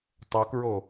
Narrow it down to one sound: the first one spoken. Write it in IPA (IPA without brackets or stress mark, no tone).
tˤ